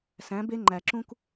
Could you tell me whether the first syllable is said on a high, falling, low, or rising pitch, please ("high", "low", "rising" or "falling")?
rising